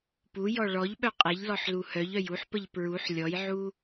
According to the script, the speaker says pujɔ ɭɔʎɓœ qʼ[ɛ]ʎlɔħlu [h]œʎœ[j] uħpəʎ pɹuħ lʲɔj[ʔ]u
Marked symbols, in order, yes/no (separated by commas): yes, yes, yes, no